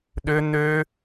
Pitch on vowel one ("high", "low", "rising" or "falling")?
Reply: high